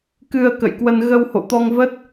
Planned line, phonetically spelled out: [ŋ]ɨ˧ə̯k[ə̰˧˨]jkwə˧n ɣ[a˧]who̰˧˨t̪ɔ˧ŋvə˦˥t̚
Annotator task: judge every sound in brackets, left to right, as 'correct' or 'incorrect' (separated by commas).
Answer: incorrect, correct, incorrect